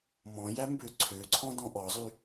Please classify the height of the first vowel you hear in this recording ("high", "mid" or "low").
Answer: mid